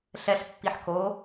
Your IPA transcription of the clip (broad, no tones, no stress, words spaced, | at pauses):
ɬɛɬpːiħ ko